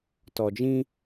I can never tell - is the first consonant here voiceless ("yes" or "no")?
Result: yes